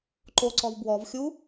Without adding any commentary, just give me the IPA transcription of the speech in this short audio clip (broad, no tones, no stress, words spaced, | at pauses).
ǃoǀɔv bwɔvxʲu